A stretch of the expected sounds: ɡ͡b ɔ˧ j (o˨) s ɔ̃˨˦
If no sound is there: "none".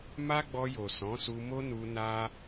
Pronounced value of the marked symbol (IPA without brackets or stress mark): o˨